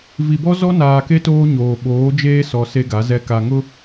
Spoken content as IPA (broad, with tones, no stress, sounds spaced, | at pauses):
v i˨ b ɔ˦ z ɔ˦ n aː˨ k e˦ t oː˦ ɲ oː˨ ɓ oː˨˦ d͡ʒ eː˦ s ɔ˨ s e˦ ɡ a˨˦ z ɛ˦ k a˨ ŋ ʊ˦